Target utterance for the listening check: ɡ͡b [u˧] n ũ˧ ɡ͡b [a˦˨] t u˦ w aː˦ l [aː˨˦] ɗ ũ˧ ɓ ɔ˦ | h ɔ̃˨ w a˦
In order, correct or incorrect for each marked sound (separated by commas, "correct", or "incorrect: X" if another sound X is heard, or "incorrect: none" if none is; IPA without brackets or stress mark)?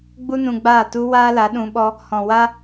incorrect: u˦, incorrect: aː˦˨, incorrect: a˨˦